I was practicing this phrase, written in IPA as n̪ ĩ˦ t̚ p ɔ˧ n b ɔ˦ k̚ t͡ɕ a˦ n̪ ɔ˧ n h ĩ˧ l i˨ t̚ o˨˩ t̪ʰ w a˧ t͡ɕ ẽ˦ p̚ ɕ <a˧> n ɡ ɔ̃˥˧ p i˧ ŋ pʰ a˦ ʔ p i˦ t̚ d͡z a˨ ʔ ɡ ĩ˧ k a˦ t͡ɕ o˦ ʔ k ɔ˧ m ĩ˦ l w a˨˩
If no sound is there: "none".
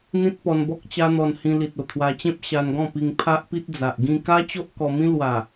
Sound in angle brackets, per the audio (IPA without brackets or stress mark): a˧